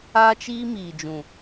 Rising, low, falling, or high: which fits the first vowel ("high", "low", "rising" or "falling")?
high